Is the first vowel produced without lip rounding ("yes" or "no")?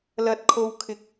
yes